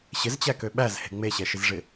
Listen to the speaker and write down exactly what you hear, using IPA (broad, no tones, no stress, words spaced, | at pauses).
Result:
ɕɪzt͡ɕækø ɓæzhe̤ ŋ͡meɕɛʃɪzʐɪ